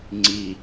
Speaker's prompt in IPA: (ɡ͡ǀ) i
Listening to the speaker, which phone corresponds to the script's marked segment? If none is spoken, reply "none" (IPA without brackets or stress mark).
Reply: ŋ͡ǀ